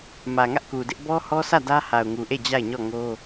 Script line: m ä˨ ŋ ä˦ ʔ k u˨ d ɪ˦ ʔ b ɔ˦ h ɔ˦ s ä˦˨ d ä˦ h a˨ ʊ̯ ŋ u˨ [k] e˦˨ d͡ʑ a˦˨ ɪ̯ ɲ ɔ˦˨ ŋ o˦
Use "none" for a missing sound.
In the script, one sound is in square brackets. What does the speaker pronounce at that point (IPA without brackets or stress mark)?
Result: ʔ